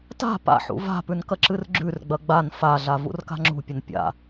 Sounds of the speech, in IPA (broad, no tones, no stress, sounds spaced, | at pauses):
t a̤ p a̰ ħ ṵ v a̤ p ʉ n k ɐ ǁ ɨ r ɡ͡ǁ ʉ r ɡ͡b ɐ ɡ͡b a n f a ɮ a v ṵ r k a̤ ŋ͡ǁ ṳ pʲ ɐ n pʲ a̰